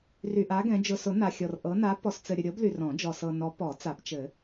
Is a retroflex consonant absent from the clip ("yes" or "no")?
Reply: yes